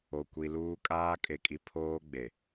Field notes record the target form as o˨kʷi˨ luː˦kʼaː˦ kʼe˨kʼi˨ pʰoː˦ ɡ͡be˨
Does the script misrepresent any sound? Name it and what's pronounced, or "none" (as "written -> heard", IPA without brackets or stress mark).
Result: none